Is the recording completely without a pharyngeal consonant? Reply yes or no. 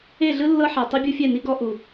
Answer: no